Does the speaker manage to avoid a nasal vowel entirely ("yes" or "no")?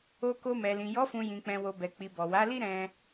no